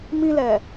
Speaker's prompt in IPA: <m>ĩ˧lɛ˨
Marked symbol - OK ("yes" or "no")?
yes